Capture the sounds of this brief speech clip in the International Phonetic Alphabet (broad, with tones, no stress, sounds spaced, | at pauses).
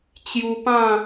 t͡ɕ j u˧ p ã˥˧